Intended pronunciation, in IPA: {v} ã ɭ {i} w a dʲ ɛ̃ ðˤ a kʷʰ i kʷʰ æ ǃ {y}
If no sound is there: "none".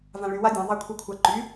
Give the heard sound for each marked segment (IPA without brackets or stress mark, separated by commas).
v, y, y